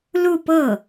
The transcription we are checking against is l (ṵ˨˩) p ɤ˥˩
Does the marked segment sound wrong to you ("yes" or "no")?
yes